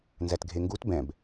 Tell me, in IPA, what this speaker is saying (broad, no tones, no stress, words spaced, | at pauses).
nzætɡʱeŋɡut bɛ̃b